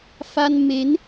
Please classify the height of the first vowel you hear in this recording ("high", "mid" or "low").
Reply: low